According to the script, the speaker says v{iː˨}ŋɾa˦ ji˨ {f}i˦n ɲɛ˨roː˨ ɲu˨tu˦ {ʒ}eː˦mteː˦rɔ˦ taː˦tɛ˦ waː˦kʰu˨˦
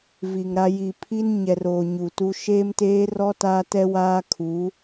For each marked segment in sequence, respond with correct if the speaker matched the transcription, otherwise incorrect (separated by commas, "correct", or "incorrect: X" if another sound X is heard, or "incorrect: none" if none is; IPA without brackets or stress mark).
incorrect: i˨, incorrect: pʰ, incorrect: ʃ